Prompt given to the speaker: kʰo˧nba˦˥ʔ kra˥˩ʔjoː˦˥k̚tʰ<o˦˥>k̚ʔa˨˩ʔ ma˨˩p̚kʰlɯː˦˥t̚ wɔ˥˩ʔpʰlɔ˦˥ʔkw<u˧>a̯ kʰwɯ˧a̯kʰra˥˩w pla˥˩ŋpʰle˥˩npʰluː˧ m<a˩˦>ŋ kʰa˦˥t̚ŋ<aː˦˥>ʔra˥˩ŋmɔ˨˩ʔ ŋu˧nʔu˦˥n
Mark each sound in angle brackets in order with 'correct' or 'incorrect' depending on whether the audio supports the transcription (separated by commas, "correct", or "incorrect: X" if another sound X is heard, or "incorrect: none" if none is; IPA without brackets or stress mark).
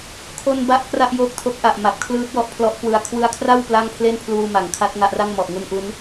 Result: correct, incorrect: ɯ˧, correct, incorrect: a˦˥